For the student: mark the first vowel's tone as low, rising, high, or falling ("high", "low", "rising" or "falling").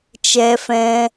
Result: high